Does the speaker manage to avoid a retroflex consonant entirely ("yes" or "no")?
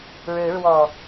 no